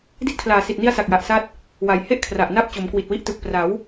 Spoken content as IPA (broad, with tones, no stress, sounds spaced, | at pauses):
d i˦˥ t̚ kʰ l aː˨˩ s i˨˩ t̚ n i˦˥ a̯ s a˨˩ k̚ j a˨˩ ʔ s a˦˥ t̚ | w a˩˦ j h e˥˩ ʔ kʰ r a˨˩ ʔ n a˥˩ p̚ t͡ɕ o˩˦ m k w i˨˩ t̚ w i˦˥ ʔ t ɯ˨˩ k̚ p r a˩˦ w